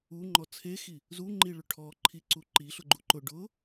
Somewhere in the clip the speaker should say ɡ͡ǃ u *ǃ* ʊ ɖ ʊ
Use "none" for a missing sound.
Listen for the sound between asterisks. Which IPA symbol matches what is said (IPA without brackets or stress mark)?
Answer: ǃ